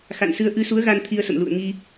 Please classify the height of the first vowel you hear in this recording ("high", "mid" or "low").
low